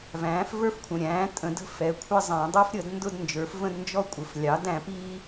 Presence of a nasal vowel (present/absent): present